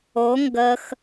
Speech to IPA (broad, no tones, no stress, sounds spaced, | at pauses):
o ŋ ɡ ə x